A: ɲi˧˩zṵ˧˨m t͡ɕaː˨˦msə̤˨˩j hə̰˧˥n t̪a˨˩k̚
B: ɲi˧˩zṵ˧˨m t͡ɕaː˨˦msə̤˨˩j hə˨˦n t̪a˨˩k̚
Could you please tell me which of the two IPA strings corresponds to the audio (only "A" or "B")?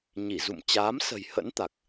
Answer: A